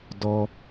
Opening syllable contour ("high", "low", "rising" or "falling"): high